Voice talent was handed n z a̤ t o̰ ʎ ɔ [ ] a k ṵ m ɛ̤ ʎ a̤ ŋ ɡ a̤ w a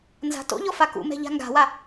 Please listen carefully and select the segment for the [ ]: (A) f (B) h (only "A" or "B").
A